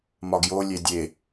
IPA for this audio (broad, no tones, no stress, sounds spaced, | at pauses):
m ɒ ɡ j o lʲ e dʲ e